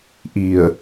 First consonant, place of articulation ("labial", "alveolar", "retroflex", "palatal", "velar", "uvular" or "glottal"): glottal